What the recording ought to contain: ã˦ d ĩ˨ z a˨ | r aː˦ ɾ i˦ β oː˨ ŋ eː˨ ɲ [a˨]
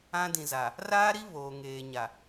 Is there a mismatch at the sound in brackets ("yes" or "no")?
no